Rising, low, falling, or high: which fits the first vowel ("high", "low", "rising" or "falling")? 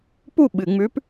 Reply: falling